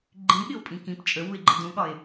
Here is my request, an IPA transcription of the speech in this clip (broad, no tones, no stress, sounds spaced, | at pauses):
ɡ͡ǃ ĩ ɠ ɪ o̯ pʼ ĩ k ĩ p t͡ʃʼ ə w u e̯ ɡ͡ǃ ə d ũ ɠ ɒ e̯